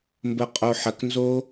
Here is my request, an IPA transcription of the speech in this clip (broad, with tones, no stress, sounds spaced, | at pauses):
m b ə˧ qʼ o˧ ħ ɐ˧ k n z o˦